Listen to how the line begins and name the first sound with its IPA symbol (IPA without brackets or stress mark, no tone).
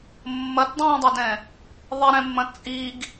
mː